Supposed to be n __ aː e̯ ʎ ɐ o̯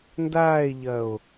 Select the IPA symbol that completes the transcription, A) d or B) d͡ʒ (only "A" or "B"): A